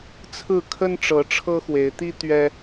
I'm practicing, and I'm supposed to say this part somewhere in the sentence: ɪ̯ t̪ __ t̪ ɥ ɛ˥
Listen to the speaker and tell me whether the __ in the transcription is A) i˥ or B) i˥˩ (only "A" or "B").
A